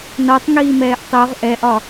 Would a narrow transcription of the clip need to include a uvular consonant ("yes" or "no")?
yes